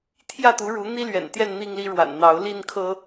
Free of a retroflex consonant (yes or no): no